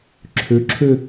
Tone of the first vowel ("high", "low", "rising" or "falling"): rising